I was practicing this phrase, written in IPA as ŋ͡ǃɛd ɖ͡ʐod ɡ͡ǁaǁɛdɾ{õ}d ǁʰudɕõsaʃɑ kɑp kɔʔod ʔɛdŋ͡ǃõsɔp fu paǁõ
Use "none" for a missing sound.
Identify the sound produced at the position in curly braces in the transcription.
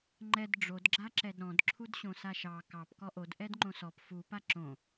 ɔ̃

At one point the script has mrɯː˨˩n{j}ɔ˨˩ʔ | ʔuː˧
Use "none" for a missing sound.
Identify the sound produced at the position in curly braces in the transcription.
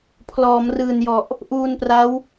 j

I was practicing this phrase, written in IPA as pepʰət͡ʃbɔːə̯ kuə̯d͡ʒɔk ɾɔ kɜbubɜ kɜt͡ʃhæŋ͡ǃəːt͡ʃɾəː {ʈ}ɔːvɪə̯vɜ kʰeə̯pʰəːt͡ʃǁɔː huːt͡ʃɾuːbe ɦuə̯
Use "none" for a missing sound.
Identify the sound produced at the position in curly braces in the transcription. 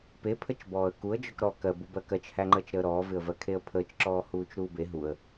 ɾ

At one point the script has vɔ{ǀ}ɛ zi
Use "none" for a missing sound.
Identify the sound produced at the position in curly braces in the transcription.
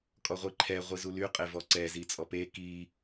ǀ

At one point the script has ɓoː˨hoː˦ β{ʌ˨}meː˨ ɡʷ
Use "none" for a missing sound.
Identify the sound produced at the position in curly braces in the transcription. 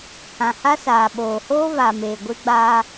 a˨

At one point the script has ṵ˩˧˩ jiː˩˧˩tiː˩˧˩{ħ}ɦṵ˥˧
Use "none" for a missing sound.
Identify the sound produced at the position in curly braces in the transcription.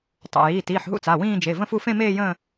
ħ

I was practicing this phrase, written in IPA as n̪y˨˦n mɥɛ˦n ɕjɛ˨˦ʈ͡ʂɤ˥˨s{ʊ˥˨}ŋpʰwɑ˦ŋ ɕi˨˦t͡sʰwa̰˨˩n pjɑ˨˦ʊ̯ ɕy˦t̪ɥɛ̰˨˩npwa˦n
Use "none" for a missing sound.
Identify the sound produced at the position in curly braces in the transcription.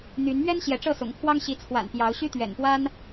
ʊ̰˨˩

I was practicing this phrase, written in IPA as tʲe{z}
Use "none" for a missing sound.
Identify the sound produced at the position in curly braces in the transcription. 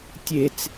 t͡s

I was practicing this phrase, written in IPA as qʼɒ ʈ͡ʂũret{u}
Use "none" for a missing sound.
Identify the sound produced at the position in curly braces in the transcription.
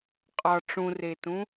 ũ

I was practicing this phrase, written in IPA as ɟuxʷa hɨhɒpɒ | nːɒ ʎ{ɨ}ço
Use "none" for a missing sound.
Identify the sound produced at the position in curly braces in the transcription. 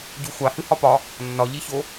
i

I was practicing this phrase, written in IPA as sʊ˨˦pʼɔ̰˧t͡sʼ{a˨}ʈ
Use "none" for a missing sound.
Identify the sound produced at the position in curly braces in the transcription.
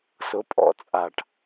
a˨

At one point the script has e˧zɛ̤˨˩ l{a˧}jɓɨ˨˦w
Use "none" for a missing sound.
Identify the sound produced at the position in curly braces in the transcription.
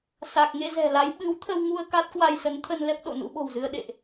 a˨˦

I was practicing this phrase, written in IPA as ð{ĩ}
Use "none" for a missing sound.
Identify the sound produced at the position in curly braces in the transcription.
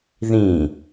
ĩ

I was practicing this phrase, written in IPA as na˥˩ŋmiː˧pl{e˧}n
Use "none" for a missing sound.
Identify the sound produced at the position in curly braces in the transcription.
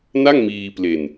e˧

